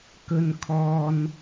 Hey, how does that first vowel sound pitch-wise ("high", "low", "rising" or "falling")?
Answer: low